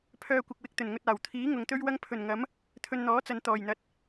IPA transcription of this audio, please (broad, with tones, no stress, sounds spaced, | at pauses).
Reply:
pʰ œː˧ kʷ ɪ˨ k̚ w ɪ˧ k̚ t̪ ɵ˨˩ n ŋ ɵ˧ t̚ aː˨˩ w t̪ʰ iː˨˥ ŋ ʊ˨ ŋ t̪ ɵ˥ ɥ w ɐ˥ ŋ pʰ ɵ˨˩ n ŋ ɐ˨˥ m | t̪ʰ ɵ˧ n n̪ ɔː˨˥ t͡s ɐ˨ n t̪ ɔː˨˩ j n̪ ɐ˨ t̚